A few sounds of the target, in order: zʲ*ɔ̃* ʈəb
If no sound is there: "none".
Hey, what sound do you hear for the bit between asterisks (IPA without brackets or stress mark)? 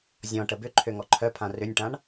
ɔ̃